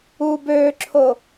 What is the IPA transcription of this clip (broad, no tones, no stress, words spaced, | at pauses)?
u bøǁʰo